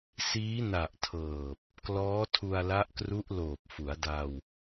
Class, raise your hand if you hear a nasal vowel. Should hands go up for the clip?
no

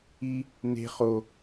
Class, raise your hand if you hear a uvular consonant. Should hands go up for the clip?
yes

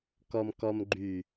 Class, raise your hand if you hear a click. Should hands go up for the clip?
yes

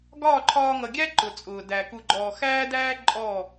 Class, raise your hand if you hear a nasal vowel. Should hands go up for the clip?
no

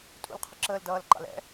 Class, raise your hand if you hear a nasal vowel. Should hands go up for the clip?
no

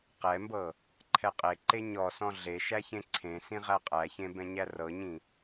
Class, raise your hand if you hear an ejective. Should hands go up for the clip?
yes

